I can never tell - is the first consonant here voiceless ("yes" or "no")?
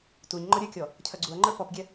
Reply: yes